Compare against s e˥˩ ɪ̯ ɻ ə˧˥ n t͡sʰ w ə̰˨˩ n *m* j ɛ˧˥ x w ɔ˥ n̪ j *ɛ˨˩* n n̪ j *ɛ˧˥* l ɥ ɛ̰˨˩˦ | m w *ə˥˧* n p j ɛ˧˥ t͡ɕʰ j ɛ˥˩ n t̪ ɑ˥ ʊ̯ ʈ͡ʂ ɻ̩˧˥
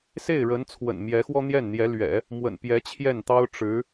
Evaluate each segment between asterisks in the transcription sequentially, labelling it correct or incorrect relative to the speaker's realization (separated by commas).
correct, incorrect, correct, incorrect